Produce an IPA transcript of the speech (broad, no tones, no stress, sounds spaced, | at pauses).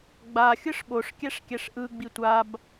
ɡ͡b a xʲ ɯ ʂ ɓ o ʂ kʲ ɛ ʂ kʲ ɛ ʂ ʔ ɯ ɡ͡b i tʷ a b